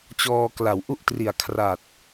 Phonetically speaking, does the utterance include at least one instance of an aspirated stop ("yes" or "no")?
yes